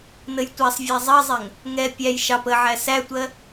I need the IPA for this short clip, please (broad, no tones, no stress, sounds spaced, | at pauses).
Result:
n ə j tʷ æ sˤ vʲ æ zˤ ɜ zˤ ɛ ŋ | ŋ ɛ pʲ æ j ʃ ɑ p ə ʕ æ s æ tʷ ɜ